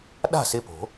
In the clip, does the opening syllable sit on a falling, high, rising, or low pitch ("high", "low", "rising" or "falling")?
falling